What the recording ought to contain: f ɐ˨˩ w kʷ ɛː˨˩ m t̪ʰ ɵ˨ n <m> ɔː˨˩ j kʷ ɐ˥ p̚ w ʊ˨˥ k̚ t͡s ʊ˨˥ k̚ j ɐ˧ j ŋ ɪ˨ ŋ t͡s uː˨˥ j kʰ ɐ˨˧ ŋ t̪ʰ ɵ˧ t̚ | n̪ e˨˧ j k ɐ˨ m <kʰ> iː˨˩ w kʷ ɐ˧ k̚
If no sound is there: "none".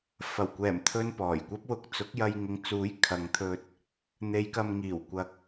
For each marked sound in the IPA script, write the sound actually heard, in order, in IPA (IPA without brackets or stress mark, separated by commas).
p, ŋ